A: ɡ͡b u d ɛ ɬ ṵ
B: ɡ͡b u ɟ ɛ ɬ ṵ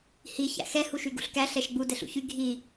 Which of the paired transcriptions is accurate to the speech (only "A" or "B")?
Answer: A